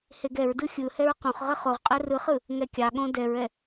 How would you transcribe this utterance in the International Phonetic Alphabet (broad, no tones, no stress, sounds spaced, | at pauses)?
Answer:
h e ɡ ɛ ɹ d ɯ xʲ ɯ h ɛ ɹ q õ χ ʁ ə χ o ʁ qʼ ɛ r ɯ χ ɯ | ŋ ɛ kʲ ɑ ɠ õ d ɛ ɹ ɛ